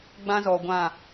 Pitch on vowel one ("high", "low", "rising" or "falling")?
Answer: high